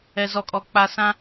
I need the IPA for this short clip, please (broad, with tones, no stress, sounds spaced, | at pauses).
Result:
ɛ˨ z ɔ˨ kʼ ɔ˨ k͡p a˨ s ã˦